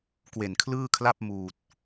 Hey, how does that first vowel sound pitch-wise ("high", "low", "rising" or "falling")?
low